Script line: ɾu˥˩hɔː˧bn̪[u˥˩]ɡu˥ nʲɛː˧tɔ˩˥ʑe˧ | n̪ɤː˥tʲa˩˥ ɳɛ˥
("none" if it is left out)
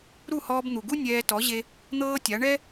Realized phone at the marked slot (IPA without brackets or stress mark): u˩